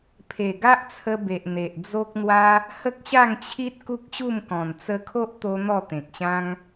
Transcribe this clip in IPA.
pʰ e˨˩ ɡ a˦ ʔ t͡sʰ ə˧ b e˨ ʔ n̪ e˨ ʔ d͡z o˦ k̚ n̪ w a˦ | h ə˦ k̚ ɕ a˥˧ ŋ t͡ɕʰ i˦ t̚ k u˦ k̚ ɕ u˥˧ m k ɔ̃˨˩ n t͡s ə˧ kʰ o˦ ʔ t̪ o˧ n̪ ɔ˥˧ t̪ ẽ˨ k̚ ɕ ã˦ ŋ

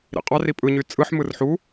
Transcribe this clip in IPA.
ɾ ḭ qʼ ɑ r i pʼ ɯ ɲ y t͡sʼ ɯ ħ m ɯ r ħ u

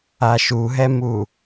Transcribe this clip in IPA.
a ʃ u ɦ ɛ m u

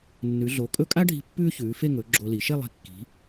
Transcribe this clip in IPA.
nː ʉ˩˧ ɮ o˩˧ kʼ ɵ˥˧ kʼ a˥ ɖʱ i̤˧ pː ʉː˥ ç ʉː˩˧ f e˥˧ ŋ ɵ˩˧ ɡ͡ǁ o˧ l i˩˧ ʃ e˥˧ lˠ i̤˧˩ kː i̤˩˧

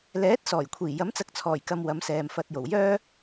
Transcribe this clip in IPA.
l ɛː˨˥ t̚ s ɔː˨˩ j kʷʰ iː˨˩ j ɐ˨˥ m t͡s ɐ˨˥ k̚ t͡sʰ ɔː˨˩ j k ɐ˨ m w ɐ˨˧ m s ɛː˨ m f ɐ˧ t̚ j o˨˩ w j œː˥

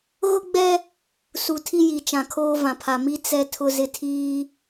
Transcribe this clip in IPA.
ɣ ʊ˦ ɡ͡b ɛ˦ | s u˨ tʰ i˦ j i˨ t͡ʃ ã˨ kʰ oː˦ v ã˨ pʰ a˨ m i˦ t͡s ɛ˦ tʰ ʊ˦ z ɪ˦ tʰ iː˦

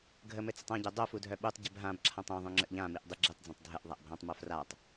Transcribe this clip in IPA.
ɡʱ ə m ɘ t͡s ə tˤ ã ɟ ɛ dˤ o f u dʱ œ ɓ u tˤ ɟ ɘ b ɦ ã b ǁʰ ã tˤ œ̃ ðˤ œ̃ ŋ͡ǁ ə ʔ ʎ ã m i ʔ dˤ i ɡ͡ǁ i tˤ d͡z œ̃ tˤ dʱ ə ʔ ðˤ a ʔ bʱ ã tˤ m o f r a tˤ

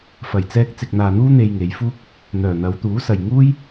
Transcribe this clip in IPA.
f ɐ˨˩ j t͡s ɛː˧ k̚ t͡s ɪ˨ k̚ n̪ aː˨ n̪ uː˥ n̪ e˧ j ŋ e˨˧ j f uː˥ k̚ | n̪ œː˨˩ n̪ ɐ˨˧ w t̪ uː˨˥ s ɐ˨ j ŋ uː˥ j

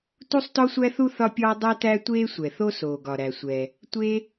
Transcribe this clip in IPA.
t u˥ sˤ t ɔ˥ sʷ æ˥ θ u˥ θ ɒ˥ pʲ ɒː˥ dˤ ɛ˥ t æ˥ tʷ eː˥ sʷ ɛ˩ θ o˥ s oː˩ ɡ ɒ˩ ɾ æ˩ sʷ ɛ˩ | tʷ e˥

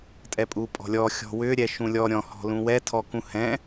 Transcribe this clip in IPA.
tʼ ɛ pʼ u pʼ ɔ̤ lʲ ɔ xʲ ɔ̤ w ʏ ɾʲ ɛ ʃ ũ lʲ ɔ ɾʲ ɔ̃ h ɔ̤ l ũ w ɛ tʰ ɔ k ũ h ɛ̃

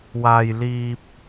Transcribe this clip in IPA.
w aː˨ j l iː˨ p̚

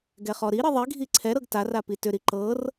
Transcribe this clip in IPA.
ɡ ɛ χ ɔ ɾ i ɾ i ðˤ i ɡʱ i ǀʰ ɛ ɾ ɤ ɡ t a r a p i t ʏ ɾ i ǃ ɤ r

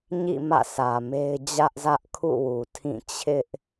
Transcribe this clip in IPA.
ɲ ḭ˦˨ m ä̰˦˨ sʰ ä˨ m e˦ ɪ̯ d͡ʑ ä˦ ʔ z ä˦ ʔ kʰ ṵ˦˨ w u˨ tʰ ĩ˦˨ t͡ɕʰ ɪ˦ ʔ

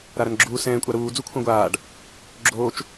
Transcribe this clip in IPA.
ɾ a ɾ ɐ n ɡ͡ǁ uː s ɛ̃ː kʷʼ a ɾ uː d͡z u kʷʰ ɛ̃ ɡʷ aː ɖ | ɡ͡ǁ oː t͡ʃ

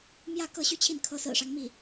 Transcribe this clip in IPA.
m j ä˥˧ k ɤ˥˧ ɕ y˥˧ t͡ɕʰ i˥˩ n kʰ ɤ˧˥ s ɹ̩˨˩ ʂ ɑ˦ ŋ m i˥˩

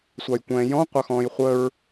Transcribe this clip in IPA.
sʷ ɑ j kʷ ɛ̃ː j ɔ̃ qʷ ɑ x ɔ̃ː j χʷ əː ɹ

